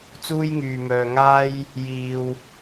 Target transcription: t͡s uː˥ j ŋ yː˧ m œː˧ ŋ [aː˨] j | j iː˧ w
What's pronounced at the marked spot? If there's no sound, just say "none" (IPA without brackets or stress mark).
aː˥